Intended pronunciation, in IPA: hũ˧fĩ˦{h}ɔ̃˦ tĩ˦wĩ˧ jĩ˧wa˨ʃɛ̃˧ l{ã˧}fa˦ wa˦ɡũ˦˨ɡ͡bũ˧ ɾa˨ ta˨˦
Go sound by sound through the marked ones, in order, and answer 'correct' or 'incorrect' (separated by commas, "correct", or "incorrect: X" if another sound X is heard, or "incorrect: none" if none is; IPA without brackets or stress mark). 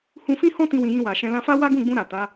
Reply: correct, correct